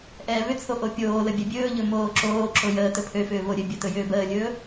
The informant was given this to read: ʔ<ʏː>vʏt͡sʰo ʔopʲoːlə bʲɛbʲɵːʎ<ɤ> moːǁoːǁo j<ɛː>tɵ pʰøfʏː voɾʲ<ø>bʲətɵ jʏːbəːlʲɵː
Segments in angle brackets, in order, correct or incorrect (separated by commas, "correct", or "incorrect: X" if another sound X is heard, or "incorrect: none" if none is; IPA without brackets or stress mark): incorrect: ɛː, incorrect: ɵ, incorrect: əː, correct